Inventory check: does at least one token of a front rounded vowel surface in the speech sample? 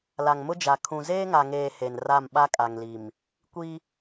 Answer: no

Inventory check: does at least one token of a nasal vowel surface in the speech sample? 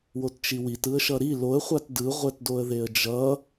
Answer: no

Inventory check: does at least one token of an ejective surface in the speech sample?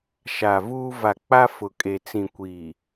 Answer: yes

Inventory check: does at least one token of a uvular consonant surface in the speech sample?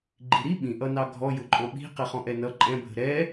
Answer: yes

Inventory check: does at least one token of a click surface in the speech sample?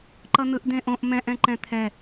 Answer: yes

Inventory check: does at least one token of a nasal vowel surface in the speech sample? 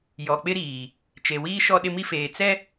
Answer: no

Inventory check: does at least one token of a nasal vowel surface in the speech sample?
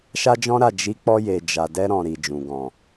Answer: yes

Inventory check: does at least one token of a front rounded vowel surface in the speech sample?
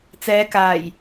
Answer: no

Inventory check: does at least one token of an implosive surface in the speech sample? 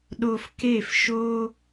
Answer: yes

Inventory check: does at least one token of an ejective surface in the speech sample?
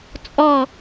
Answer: yes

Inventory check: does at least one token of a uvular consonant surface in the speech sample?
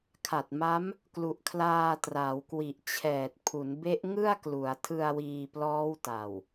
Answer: no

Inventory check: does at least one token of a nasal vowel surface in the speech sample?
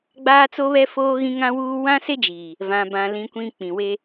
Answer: yes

